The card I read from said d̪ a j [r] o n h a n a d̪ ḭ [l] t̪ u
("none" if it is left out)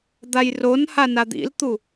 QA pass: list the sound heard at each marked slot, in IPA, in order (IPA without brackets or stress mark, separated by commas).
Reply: r, l